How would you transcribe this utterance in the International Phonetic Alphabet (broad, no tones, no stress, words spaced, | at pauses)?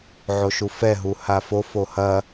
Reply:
ʕoʃufɛɦu hafo fohɐ